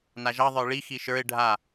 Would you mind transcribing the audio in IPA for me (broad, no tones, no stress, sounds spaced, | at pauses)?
n a ʒ ɑ ðˤ ə˞ ɭ i x i ʃ ə˞ ɪ̯ ɖʱ a